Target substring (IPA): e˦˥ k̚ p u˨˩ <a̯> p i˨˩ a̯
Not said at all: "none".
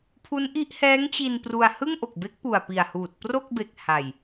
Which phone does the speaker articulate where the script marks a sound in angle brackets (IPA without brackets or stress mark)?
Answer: a̯